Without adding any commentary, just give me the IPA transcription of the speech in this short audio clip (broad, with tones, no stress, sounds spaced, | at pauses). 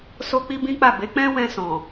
s o˦ k͡p i˦ b ĩ˦ k͡p a˦˨ b e˨˦ k͡p ɛ̃˦ w ɛ̃˧ s ɔ̃˨